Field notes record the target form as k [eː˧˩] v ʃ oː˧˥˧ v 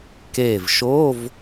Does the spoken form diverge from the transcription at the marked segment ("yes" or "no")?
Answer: no